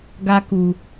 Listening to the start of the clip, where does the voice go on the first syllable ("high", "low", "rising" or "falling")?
high